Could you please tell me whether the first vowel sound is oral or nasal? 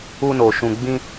oral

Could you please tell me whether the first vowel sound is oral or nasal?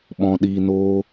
nasal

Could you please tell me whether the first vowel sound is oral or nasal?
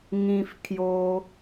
nasal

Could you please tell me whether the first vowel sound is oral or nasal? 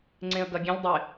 nasal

